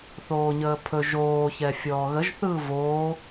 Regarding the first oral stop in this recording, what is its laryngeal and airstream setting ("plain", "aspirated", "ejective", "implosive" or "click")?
aspirated